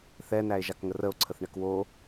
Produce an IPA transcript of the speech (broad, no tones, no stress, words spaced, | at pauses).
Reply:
θɛnæe̯ʒakŋə rəo̯ǀʰəθɳɛk wo